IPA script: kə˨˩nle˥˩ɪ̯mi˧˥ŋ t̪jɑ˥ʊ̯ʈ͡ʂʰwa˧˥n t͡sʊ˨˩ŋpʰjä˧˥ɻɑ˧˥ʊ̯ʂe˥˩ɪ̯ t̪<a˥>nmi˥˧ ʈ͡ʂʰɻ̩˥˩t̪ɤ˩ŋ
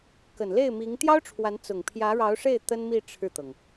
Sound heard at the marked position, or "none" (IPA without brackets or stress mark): ə˥